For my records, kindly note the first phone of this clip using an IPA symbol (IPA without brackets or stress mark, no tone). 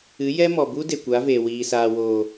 ɨ